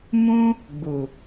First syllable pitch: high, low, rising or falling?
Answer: high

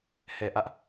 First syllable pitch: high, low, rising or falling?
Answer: low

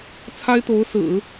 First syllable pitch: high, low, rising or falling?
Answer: high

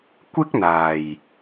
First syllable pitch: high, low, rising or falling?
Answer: high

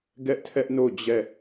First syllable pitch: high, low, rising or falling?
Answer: high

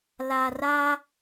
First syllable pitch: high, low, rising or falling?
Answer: low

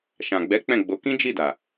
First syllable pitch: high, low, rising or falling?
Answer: low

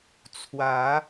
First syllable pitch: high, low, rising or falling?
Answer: rising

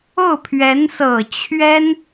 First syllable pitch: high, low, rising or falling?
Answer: falling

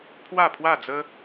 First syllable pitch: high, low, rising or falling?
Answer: falling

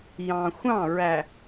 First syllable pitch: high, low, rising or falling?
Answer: low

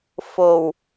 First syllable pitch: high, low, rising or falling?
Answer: low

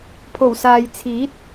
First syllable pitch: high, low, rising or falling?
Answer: low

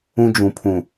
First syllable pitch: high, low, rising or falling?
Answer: high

